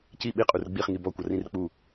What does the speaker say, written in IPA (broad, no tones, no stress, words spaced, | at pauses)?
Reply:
ci ɓiqʼur ɡ͡biχŋi bɔkʷʌrĩr k͡pu